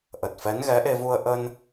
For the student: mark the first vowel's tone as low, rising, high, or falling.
low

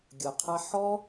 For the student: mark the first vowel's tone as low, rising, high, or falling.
low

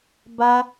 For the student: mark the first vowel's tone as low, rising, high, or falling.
high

